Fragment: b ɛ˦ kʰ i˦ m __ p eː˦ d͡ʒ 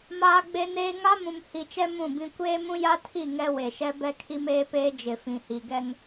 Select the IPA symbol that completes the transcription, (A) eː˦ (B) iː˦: A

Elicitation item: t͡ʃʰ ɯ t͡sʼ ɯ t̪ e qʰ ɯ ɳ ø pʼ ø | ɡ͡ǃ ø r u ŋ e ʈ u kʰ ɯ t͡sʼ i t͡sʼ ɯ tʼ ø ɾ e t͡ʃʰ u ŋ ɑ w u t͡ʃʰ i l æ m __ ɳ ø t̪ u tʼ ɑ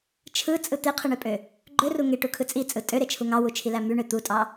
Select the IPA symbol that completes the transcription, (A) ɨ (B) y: B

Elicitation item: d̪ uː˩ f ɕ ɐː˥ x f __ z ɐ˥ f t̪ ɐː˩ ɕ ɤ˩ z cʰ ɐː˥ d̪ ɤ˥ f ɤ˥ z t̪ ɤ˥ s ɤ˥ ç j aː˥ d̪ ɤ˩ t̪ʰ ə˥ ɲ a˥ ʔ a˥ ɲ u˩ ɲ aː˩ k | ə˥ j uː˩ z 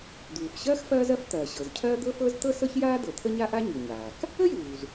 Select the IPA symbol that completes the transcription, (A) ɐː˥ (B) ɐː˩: A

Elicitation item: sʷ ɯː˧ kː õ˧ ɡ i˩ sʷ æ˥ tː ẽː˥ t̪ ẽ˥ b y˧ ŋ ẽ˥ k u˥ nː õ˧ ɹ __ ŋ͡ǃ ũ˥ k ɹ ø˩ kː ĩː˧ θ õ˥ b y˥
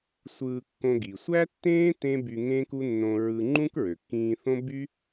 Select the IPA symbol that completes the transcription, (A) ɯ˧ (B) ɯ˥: A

